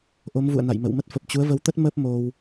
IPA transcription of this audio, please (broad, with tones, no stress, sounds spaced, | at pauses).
ʔ o˨˦ m v ṵ˧˨ ə̯ n a̰˧˨ j m ə̰˧˨ w m ə˦˥ t̚ f ə˨˩ p̚ t͡ɕ u˨˦ ə̯ v ə˨˦ w t̪ ə˦˥ t̚ m ə˦˥ p̚ m o˧ w